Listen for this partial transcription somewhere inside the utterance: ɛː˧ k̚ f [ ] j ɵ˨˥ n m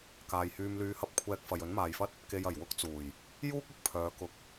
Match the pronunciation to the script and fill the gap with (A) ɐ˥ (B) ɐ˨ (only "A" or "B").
B